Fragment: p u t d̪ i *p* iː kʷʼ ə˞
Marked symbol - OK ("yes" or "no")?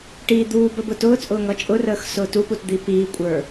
yes